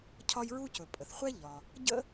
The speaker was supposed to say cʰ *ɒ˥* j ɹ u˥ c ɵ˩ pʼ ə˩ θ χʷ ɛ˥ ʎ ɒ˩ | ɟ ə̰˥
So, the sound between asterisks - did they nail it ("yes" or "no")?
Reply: yes